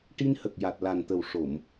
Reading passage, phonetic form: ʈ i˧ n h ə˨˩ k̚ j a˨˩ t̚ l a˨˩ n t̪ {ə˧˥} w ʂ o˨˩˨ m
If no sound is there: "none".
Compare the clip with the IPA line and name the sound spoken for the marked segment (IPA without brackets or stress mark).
ə˨˩